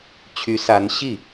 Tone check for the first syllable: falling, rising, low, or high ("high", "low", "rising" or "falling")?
rising